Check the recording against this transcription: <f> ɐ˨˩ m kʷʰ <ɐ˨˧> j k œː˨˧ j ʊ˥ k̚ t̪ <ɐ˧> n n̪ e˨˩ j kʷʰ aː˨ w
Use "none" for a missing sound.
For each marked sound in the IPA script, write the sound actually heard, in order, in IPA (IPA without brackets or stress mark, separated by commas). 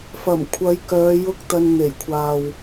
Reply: f, ɐ˨˧, ɐ˧